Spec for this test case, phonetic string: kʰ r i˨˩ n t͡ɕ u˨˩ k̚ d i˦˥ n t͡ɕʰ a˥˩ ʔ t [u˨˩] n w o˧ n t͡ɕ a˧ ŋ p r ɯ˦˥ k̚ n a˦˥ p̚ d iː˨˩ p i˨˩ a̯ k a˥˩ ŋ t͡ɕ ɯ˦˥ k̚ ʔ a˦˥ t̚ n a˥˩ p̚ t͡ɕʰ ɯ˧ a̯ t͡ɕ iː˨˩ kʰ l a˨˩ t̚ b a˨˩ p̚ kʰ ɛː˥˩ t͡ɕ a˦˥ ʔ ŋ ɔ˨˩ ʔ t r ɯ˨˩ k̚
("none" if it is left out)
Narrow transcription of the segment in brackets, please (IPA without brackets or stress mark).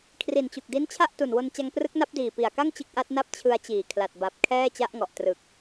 u˨˩